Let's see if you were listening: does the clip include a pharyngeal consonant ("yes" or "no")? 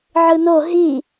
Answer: yes